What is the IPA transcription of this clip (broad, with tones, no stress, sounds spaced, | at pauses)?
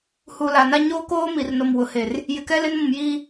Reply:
h u˨ l a˨ n a˦ ɲ oː˦ k oː˦ m i˨ r n o˨ m w ʊ˨ h e˨ r | j ɪ˨ k ɛ˦ l ɪ˦ n m ũ˨ m j iː˦